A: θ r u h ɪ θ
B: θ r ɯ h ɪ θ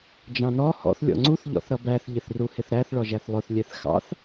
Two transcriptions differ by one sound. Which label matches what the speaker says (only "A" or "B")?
A